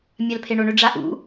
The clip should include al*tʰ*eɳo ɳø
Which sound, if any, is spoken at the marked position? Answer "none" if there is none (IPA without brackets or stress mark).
pʰ